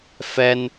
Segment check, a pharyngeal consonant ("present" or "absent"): absent